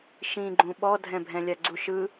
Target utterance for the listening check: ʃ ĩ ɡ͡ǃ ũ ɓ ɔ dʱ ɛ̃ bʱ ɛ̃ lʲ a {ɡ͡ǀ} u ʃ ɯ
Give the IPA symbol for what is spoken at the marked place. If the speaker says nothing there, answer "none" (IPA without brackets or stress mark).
ɡ͡ǀ